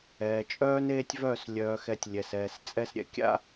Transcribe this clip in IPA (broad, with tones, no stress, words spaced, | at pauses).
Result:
ɛː˨t͡ʃʼœː˦n eː˦tʲvœː˦˨s lʲœː˨xɛ˨tʲ lʲɛ˨sɛː˨st͡sʼɛ˦s ɾʲɛ̰˨kʲa̰˦